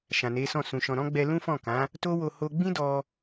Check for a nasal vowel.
present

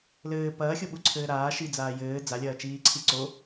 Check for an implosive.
present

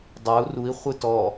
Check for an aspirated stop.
absent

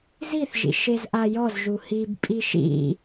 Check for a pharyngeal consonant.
absent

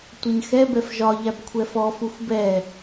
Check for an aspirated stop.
present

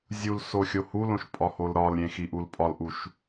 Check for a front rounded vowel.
absent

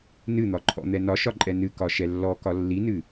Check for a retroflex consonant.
absent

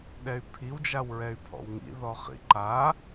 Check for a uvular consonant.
present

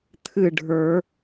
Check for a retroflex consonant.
present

